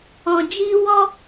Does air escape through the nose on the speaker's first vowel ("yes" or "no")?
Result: yes